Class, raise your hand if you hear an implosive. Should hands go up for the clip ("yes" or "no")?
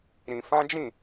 no